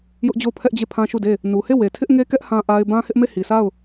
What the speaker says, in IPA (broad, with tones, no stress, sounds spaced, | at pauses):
j ʊ˦ ʔ d͡ʑ o˦˨ ʊ̯ pʰ ɛ˦ ʔ d͡ʑ e˦˨ pʰ ã˦ ʃ u˦˨ d e˦˨ | n u˨ h e˦˨ w e˨ tʰ ɪ˦ ʔ ŋ e˦ k ɛ˦ ʔ h ã˦ ʔ a˦ ɪ̯ b ã˦ h ɪ˦ ʔ m e˦˨ h i˨ sʰ a˦˨ ʊ̯